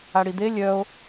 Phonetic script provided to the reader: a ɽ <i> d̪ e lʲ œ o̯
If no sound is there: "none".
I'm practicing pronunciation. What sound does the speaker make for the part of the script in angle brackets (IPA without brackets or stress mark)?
i